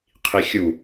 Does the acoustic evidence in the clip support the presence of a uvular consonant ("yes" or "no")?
yes